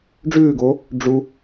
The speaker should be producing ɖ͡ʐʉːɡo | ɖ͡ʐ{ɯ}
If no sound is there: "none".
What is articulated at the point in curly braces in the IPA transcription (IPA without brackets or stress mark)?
u